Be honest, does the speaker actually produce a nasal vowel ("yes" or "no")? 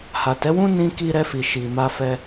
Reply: yes